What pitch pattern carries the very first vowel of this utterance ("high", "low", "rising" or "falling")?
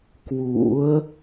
rising